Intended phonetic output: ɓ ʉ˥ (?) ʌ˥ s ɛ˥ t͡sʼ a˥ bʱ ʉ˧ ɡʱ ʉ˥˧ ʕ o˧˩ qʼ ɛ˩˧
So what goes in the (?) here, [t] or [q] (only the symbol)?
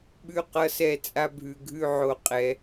q